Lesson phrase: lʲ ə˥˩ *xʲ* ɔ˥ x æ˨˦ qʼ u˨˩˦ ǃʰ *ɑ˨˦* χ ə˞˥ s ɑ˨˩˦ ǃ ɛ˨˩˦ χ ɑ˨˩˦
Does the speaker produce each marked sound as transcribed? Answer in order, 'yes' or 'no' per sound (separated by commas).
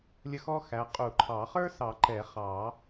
no, no